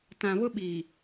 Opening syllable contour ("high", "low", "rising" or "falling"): low